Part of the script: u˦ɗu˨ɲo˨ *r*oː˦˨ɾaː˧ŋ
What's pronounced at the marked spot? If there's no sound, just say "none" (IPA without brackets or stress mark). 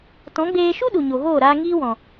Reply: ɣ